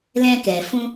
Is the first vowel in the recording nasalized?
yes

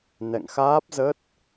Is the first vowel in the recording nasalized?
no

